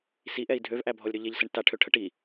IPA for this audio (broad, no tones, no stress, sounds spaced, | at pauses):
s i ʔ ɛ i̯ dʱ ø v ʔ æ bʱ ɔ lʲ ɾ ø ʎ e ʎ s ə ɳ t a ʈʰ ø ʈʰ ə ʈ i